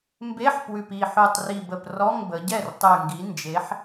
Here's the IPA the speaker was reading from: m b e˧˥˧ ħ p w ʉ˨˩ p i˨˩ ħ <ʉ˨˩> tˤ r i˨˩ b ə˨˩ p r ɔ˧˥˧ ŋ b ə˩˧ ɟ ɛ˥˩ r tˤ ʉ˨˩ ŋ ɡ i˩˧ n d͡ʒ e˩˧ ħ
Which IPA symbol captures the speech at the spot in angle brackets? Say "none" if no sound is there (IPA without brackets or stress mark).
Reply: ʉ˨˩